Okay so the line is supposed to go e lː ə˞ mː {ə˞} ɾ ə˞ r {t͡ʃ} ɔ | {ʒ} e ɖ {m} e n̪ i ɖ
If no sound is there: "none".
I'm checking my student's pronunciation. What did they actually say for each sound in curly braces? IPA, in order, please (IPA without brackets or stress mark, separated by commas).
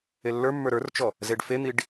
ə˞, t͡ʃ, z, f